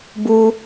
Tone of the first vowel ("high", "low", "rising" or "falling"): high